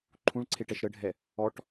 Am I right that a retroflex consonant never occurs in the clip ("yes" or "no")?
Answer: no